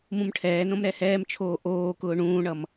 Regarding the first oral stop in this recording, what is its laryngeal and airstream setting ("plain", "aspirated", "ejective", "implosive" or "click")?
aspirated